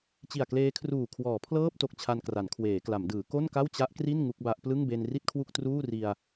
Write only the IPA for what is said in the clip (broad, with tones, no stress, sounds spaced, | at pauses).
t͡ɕ i˨˩ a̯ k l eː˦˥ kʰ r uː˨˩ kʰ w ɔː˩˦ pʰ l ɤː˥˩ p̚ t o˨˩ k̚ t͡ɕʰ a˧ n k r a˩˦ n kʰ w eː˩˦ k l a˩˦ m d ɯː˩˦ k o˥˩ n k a˥˩ w t͡ɕ a˦˥ ʔ k r i˥˩ n ŋ u˦˥ k̚ b a˦˥ ʔ p l ɯ˥˩ ŋ b e˧ n r i˥˩ t̚ kʰ w u˥˩ k̚ t r uː˥˩ r i˧ a̯